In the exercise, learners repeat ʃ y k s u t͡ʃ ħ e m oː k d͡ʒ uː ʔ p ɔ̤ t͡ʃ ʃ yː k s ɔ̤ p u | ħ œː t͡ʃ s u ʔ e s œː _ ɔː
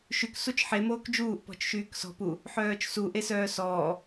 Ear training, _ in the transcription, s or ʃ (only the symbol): s